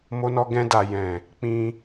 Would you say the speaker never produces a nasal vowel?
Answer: no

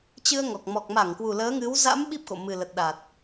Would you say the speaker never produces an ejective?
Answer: yes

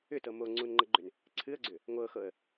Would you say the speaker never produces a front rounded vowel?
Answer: no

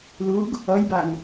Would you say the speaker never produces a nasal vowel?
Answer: yes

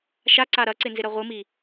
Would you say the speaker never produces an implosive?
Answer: yes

